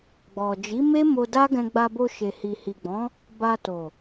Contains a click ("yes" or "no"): no